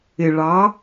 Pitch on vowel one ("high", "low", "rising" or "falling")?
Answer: low